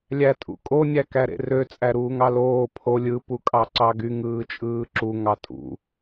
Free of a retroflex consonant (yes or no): yes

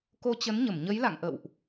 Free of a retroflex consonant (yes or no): yes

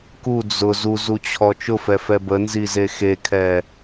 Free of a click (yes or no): yes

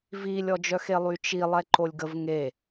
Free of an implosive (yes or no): yes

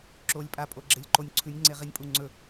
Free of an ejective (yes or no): no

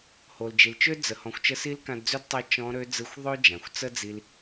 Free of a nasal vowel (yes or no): no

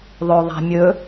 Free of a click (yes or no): yes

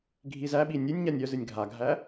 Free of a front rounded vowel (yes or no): no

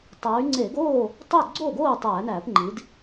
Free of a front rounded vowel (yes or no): no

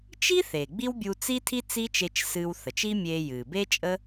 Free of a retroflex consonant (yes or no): yes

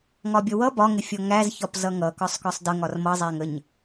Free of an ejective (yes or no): yes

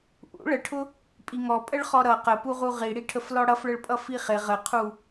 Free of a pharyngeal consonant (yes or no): yes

